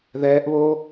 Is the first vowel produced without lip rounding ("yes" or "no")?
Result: yes